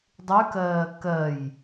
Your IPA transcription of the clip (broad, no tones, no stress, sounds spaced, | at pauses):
dˤ ʉ k ɜː k ɜ j